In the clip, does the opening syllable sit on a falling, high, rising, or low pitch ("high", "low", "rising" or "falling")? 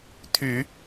low